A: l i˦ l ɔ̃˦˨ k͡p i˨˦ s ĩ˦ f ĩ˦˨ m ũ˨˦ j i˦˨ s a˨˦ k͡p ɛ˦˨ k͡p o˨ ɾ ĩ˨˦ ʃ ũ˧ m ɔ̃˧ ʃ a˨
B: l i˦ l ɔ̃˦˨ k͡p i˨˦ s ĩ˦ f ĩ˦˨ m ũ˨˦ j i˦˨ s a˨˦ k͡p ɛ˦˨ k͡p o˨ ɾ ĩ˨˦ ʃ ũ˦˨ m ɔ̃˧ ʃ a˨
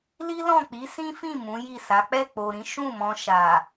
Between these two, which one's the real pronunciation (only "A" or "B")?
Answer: B